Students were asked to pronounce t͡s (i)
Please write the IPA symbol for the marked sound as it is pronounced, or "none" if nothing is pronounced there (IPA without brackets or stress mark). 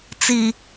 i